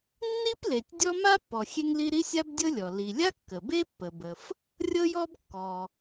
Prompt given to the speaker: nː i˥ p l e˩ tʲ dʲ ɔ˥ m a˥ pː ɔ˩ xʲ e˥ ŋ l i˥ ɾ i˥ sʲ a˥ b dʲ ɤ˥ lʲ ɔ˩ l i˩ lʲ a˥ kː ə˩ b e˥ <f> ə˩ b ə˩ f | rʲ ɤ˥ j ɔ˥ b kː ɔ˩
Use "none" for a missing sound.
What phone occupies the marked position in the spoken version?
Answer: pː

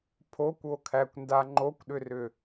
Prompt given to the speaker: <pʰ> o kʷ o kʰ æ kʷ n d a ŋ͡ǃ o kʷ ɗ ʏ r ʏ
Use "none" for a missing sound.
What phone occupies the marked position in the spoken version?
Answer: pʰ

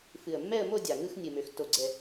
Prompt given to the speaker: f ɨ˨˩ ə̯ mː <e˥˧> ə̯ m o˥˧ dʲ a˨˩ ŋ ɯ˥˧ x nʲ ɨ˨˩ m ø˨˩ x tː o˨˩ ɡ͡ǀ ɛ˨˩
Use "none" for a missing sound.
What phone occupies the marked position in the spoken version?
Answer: ɛ˥˧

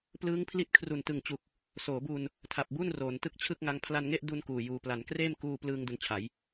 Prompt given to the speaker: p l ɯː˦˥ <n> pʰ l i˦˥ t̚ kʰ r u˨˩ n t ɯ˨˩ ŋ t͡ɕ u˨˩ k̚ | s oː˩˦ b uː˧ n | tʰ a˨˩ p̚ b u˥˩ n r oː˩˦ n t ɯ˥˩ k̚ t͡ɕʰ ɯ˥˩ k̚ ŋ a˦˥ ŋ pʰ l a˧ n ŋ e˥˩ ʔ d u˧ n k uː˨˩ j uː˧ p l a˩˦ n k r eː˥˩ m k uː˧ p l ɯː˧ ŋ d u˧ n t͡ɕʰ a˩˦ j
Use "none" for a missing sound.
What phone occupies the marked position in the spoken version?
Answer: ŋ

